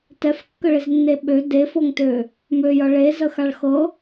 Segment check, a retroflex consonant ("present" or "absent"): present